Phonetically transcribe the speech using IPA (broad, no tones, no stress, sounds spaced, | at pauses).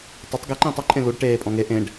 tˤ e tˤ ɡ e ǃ ĩː tˤ ɐ ǃʼ ẽ l u ɖ ʈ eː pʼ ɔ̃ ŋ e ʔ ẽ ɖ